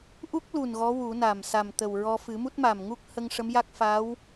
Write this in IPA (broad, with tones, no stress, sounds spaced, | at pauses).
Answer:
ʔ u˦˥ k̚ l u˨˩ n ɣ ɔ˧˥ w u˨˩˦ n a˨˩ m s a˨˩ m t̪ ə˨˩ w ɹ ɔ˧ f ɨ˨˩˦ m u˦˥ t̚ m a˨˩ m ŋ u˦˥ k̚ h ə˧ ŋ ʂ ə˧˥ m j a˦˥ k̚ f a˧˥ w